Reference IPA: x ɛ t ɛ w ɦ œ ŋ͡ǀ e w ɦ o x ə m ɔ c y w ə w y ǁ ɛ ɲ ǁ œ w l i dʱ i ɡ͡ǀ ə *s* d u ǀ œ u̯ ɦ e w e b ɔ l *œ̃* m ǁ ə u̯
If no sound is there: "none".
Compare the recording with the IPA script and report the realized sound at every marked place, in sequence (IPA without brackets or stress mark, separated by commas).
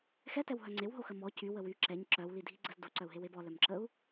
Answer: z, œ